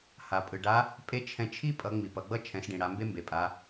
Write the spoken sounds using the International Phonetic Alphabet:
h a˩ pʼ ɯ˩ ɖ a˧˥ | pʼ e˧˥ t͡ʃʰ ɛ̃˧ t͡ʃʰ i˥ pʼ ʌ˩˧ ŋ͡m i˩ p ʌ˩˧ ɡ͡b ʌ˥ t͡ʃʰ ɛ̃˩˧ s ɖ ĩ˩ ɽ a˩˧ m b e˥ m b e˩ pʼ a˩˧

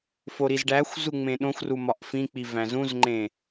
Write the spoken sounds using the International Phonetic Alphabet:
f o ɾ i z ɖ æ xʷ z u ŋ͡m ẽ ɗ õ xʷ r u m ɒ ʔ f ĩ k͡p i v æ̃ z ũ z ŋ͡ǃ ẽ

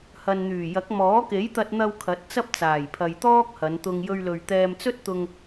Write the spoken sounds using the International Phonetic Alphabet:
h ɐ˨ n n̪ yː˨˩ j ɐ˨˥ k̚ m ɔː˨˥ k e˨˥ j t̪ ɐ˧ t̚ n̪ ɐ˧ w kʰ ɐ˨˥ t̚ t͡s ɐ˥ p̚ t͡s aː˨˩ j pʰ ɐ˨ j t̪ ɔː˥ k̚ h ɐ˨˧ n t̪ ʊ˧ ŋ j ɵ˧ ɥ l ɵ˨ ɥ t̪ ɛː˧ m t͡s ɵ˥ t̚ t̪ ʊ˧ ŋ

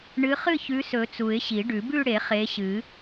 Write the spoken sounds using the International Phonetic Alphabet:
ɳ ɨ˨˦ χ ɨ˥˧ ç ʉ˨˦ s ɵ˨˩˦ t͡s u˨˩˦ ɪ̯ ɕ i˨˩˦ ɖ ʉ˨˩˦ b ʉ˥˧ ɽ e˨˩˦ χ e˨˦ ɕ ɨ˨˩˦

